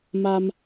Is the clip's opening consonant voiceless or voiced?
voiced